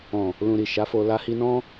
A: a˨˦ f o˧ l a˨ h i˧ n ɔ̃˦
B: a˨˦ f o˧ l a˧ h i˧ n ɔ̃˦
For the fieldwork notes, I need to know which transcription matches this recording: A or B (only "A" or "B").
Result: B